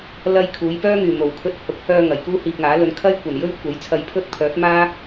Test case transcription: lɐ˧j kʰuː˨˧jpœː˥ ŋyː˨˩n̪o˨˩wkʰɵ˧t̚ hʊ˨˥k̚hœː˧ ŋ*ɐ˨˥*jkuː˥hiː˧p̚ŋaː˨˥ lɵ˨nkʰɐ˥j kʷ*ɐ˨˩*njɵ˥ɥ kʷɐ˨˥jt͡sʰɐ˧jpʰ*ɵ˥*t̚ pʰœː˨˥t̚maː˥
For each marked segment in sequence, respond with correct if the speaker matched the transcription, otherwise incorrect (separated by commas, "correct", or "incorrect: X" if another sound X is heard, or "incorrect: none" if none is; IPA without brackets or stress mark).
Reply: incorrect: ɐ˨˩, correct, correct